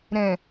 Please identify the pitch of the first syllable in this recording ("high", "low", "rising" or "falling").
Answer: low